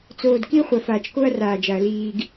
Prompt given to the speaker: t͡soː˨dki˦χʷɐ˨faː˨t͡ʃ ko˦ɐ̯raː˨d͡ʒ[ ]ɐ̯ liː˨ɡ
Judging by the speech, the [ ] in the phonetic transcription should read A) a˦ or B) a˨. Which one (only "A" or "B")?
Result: B